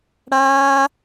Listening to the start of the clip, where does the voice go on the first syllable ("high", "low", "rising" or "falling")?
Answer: high